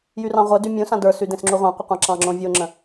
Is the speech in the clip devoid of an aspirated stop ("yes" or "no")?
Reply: yes